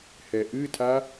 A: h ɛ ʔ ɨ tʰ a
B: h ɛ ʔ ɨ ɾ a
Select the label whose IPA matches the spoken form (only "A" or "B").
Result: A